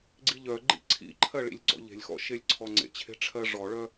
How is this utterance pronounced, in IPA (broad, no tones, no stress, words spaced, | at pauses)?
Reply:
ɡ͡ǀiʎœɡ͡ǃḭ ǀʰḭǃʰɜ ɭḭlʲɡ͡ǀɔ̰ʎe̤lʲxɔ̰ ʃelʲǀʰɔŋ͡ǀḛt͡ɕʰe̤ ʈ͡ʂʰɜʐɔɭœ